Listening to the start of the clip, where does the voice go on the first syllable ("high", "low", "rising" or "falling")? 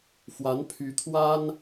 rising